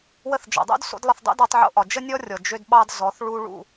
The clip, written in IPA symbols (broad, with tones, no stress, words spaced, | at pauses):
wə˧θd͡ʒɔ̰˨dˤo̰˦d so̰˦dlˠə˧θ dˤo̰˦dɒ˧tˤʕo̰˧ʔɒ˨ d͡ʒə˦nʲɔ˦ rʲɔ˨ d͡ʒø˧dɓɑ˧d zɔ˨˦θ ɭu˧ɭṵ˦˨